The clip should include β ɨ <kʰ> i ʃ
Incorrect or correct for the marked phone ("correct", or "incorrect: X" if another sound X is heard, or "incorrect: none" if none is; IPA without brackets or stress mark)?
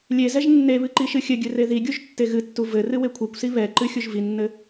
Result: incorrect: ǃ